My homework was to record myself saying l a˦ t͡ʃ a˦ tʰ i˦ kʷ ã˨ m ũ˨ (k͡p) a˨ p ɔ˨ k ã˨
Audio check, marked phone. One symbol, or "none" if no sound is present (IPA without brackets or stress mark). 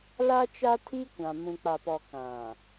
k͡p